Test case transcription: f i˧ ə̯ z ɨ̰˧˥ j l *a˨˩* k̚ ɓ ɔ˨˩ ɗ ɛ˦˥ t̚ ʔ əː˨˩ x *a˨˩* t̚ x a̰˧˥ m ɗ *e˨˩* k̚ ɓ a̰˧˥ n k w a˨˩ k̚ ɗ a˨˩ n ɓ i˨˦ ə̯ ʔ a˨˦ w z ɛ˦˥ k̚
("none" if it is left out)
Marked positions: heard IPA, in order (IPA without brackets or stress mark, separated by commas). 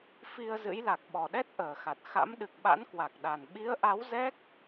a˨˩, a˨˩, ɨ˨˩